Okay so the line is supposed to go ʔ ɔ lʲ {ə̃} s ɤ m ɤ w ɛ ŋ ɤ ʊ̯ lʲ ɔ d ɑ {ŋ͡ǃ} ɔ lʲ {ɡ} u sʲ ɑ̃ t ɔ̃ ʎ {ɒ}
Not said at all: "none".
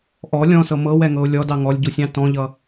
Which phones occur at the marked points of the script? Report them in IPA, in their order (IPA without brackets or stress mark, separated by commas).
ɔ̃, ŋ, ɟ, ʌ